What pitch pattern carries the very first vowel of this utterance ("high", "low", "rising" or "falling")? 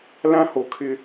high